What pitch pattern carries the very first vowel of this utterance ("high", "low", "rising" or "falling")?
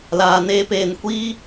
low